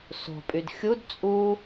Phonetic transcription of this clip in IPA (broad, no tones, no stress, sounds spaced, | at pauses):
s o̤ pʼ y d xʲ u d t͡sʼ u